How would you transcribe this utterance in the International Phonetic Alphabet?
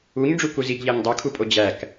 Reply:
u ɲ ɖ͡ʐ u k u z i ɡ ʎ æ ɲ dˤ o kʰ u pʼ o d͡ʑ æ k

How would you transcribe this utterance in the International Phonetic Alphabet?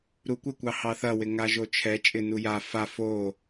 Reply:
ɾ u kʷ ɪ kʷ ɑ h ɑ θ ɐ w ɪ ŋ a ʒ o t͡ʃʰ ɛ t͡ʃʼ ɪ n u j a f a f o

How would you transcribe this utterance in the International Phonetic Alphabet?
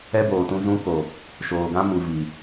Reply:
ɛ˦ b oː˨ t ũ˧ z ũ˦ k o˨ | ʃ oː˨ ɡ ã˦ m u˨ v i˨

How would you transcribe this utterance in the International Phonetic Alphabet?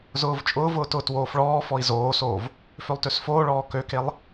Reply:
z ʊː v t͡ʃʼ ʊː v ʊː t ʊː t w oː f ɭ ɔː f ɔ i̯ z oː s oː v | f ø lˠ t ø s f oː ɭ ɔː k ø k e lˠ

